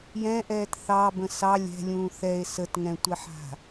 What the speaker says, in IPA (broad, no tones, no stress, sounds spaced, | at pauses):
j ɛ̃ ʔ ɛː t θ ɑ b ə̃ s ɑ lʲ ɛ̤ lʲ ũː θ ɛ e̯ s ə t ŋ ɛ̃ tʷ ɛ ħ a̤